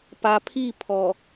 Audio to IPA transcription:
p a˨ pʰ i˦˨ pʰ ɔ˨

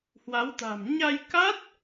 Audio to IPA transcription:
h w a˨˦ w t̪ a̤˨˩ m ɲ a˧ j k a˦˥ t̚

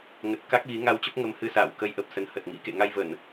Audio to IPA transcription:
ŋ ə˨˩ t̚ k a˦˥ k̚ ɣ i˨˦ ŋ a˧ w t͡ɕ ə˦˥ p̚ ŋ ə˧ m h ɨ˧ s a̰ː˧˨ w k ə˧ j ʔ ə˨˩ p̚ s ə˨˦ n h ə˨˩ t̚ ŋ ḭ˧˥ k ḛ˧˨ ŋ a˧ j v ə˧˩˨ n

